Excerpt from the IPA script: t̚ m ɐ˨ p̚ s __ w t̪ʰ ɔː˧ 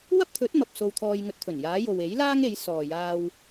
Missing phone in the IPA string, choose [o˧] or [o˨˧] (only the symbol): o˧